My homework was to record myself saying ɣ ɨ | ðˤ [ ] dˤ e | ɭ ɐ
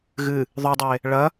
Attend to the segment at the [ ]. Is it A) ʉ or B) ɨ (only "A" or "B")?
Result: A